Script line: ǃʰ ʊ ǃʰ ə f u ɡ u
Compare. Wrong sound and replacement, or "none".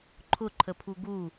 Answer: f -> pʰ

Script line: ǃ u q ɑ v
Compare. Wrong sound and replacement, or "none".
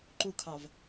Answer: q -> kʰ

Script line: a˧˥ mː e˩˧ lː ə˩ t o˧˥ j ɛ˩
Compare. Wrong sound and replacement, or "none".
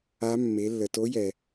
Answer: none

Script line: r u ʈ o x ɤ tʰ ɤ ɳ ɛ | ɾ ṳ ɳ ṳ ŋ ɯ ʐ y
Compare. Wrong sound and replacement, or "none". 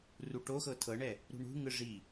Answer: y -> i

